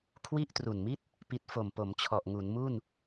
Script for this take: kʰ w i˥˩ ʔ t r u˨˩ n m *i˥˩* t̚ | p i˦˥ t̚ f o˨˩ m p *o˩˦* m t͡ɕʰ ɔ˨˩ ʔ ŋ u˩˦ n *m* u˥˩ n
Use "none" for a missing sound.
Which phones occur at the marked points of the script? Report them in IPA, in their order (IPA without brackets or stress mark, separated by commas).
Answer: i˥˩, o˩˦, m